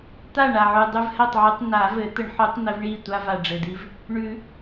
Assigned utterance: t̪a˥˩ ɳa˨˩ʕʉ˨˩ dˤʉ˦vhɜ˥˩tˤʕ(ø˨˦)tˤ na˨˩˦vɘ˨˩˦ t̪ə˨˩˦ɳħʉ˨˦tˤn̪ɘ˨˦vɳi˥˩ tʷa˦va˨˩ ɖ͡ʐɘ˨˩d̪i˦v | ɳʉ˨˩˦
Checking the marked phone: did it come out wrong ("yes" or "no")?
yes